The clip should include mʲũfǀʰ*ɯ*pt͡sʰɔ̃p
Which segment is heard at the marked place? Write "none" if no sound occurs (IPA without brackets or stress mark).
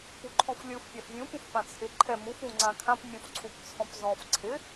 u